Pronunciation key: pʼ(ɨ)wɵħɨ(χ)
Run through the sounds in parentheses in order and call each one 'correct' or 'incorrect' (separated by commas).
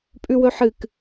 incorrect, incorrect